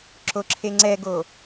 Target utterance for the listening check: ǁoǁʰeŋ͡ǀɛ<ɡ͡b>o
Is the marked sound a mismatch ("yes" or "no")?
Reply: yes